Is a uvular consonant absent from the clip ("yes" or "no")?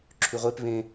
no